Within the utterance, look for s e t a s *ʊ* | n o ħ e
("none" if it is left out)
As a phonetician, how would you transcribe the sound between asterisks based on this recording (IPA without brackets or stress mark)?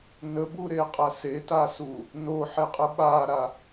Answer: u